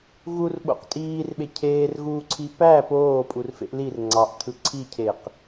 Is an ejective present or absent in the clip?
present